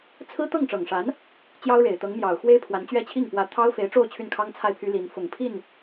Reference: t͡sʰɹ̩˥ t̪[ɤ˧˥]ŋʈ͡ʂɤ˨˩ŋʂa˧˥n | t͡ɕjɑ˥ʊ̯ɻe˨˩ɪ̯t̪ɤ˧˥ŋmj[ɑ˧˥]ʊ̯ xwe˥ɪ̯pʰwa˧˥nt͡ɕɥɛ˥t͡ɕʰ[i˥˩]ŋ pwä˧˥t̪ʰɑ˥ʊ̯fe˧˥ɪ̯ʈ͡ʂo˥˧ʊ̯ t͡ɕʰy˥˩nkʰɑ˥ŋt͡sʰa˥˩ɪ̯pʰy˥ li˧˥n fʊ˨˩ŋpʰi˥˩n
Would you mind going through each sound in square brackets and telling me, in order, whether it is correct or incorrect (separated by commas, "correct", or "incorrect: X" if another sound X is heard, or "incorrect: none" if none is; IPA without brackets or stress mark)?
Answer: incorrect: ɤ˥˩, incorrect: ɑ˨˩, correct